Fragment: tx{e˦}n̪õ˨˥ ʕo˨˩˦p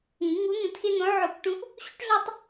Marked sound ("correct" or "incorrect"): correct